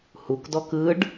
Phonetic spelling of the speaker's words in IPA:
h u k d ɔ k ɯ ɖ

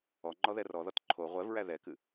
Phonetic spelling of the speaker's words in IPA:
ɔ ŋ͡ǃ ɔ ð ɛ r ɔ ð ɔ t ǃʰ o ʁʷ ɛ v ɹ æ ð ɛ k ɨ

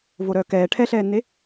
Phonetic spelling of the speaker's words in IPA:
v o ɾ œː k ɛː ʈʰ ɛ ɬ ɛː nː e

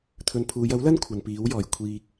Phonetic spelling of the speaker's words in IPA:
t̪ʰ ɵ˨ n pʰ uː˨˧ j ɐ˨˥ w l ɐ˥ n kʷʰ ɐ˨ n p iː˨˥ w j ɔː˨˩ j kʷʰ iː˧ k̚

